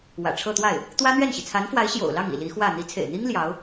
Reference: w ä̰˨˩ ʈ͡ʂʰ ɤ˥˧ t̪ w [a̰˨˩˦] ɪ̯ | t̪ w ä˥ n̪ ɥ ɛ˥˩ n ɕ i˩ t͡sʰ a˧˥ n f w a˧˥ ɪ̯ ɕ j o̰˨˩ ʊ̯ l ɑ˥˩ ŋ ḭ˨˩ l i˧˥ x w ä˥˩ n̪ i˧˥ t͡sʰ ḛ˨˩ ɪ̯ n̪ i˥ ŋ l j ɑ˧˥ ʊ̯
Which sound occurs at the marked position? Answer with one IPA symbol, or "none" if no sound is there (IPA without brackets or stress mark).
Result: a˥˩